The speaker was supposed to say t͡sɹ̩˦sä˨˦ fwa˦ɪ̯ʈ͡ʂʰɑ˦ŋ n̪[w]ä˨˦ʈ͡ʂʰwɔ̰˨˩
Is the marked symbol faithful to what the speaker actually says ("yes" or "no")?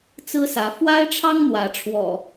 yes